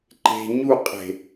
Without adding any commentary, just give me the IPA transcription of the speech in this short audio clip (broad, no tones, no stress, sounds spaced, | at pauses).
ǃ e̤ ɲ u qʼ e̤